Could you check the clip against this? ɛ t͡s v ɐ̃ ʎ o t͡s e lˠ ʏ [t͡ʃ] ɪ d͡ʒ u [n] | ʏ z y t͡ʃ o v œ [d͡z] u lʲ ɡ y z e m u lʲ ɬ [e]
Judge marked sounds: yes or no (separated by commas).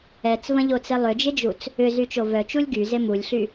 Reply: no, no, no, no